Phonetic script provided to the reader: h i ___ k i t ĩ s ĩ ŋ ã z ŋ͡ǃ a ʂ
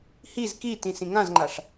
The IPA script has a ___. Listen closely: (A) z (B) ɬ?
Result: A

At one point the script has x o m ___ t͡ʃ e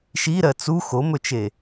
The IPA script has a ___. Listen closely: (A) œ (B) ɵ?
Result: B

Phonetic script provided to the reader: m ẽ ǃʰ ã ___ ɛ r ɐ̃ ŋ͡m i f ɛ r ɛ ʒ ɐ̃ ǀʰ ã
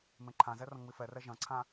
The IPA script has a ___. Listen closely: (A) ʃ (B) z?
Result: B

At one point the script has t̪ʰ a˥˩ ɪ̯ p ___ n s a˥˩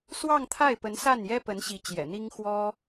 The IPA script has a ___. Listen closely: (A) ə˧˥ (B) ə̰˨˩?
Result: A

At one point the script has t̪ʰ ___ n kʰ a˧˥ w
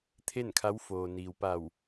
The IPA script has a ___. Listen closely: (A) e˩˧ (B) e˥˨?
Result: B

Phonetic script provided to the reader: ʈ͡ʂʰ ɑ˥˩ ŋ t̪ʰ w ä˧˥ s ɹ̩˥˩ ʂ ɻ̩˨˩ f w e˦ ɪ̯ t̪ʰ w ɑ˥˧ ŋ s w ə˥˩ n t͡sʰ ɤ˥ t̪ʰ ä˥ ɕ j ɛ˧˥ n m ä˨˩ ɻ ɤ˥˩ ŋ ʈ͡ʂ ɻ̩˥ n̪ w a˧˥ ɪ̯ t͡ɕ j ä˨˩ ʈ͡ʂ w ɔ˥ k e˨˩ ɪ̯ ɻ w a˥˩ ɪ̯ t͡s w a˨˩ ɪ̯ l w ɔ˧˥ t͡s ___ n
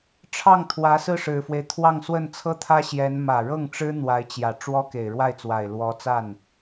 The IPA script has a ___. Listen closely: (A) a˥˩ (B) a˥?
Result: A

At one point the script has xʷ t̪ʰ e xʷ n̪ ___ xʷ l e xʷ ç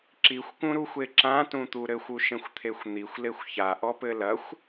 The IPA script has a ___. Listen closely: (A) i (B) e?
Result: A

